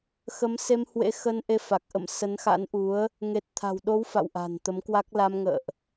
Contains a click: no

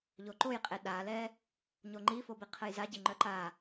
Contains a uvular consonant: yes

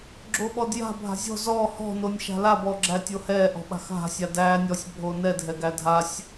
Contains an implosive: yes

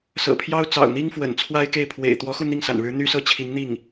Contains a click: no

